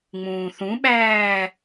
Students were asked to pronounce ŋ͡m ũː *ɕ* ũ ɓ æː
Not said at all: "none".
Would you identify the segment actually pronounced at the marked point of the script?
θ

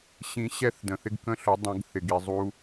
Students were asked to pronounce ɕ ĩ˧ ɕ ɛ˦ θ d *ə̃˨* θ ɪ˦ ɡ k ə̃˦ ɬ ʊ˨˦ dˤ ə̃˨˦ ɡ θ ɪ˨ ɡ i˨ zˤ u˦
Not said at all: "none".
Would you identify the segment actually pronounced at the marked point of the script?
ə̃˨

